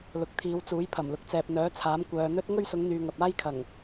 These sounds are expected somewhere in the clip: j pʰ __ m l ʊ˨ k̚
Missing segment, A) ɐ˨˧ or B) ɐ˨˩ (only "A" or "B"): B